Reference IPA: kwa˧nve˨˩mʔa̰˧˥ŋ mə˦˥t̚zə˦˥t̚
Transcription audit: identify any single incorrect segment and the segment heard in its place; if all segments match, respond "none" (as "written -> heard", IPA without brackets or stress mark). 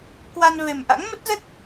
none